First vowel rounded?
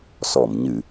yes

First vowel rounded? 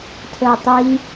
no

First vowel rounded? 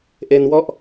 no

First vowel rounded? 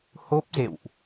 yes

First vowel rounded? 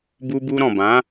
yes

